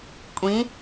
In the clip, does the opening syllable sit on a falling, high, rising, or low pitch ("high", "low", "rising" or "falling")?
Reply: rising